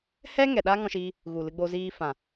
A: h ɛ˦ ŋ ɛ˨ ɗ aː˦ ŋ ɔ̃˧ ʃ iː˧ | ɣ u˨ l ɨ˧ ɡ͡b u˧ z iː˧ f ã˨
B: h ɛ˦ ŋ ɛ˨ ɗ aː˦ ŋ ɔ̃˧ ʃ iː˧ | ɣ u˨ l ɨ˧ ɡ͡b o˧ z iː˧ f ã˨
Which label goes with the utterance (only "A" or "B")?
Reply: B